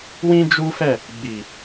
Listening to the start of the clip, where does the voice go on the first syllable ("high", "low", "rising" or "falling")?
high